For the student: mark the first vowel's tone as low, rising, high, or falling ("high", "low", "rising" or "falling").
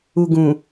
low